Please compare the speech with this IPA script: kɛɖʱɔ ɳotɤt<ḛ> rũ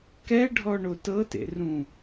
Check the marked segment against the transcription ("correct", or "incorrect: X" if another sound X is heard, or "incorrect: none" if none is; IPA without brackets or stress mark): correct